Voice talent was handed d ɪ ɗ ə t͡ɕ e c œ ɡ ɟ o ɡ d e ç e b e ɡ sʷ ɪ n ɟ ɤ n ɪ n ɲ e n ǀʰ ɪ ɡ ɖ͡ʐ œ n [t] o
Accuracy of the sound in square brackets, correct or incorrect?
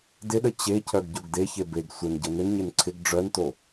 correct